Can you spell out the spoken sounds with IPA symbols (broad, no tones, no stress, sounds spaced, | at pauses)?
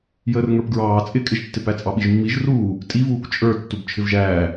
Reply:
j əː r ŋ ə˞ p ɡ ɹ ɑː t͡sʼ ɪ kʼ ɪ ʒ tː ɪ p æ t͡sʼ ɑ ɓ i ʒ mː i ʒ r uː | tʼ i v uː k t͡ʃʼ ə˞ tː u b t͡ʃʰ ɪ v ʒ æː